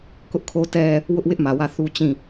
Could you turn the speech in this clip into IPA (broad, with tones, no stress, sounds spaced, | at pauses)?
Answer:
k ʊ˦ ʔ kʰ o˦ t ɛ˦ | w ʊ˦ ʔ w ɪ˦ ʔ m ä˨ w ä˦˨ θ u˦ t͡ɕ ĩ˦˨